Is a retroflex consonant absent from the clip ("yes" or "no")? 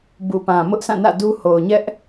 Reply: yes